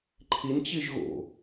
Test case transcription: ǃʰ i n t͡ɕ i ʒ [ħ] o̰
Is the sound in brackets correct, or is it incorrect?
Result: incorrect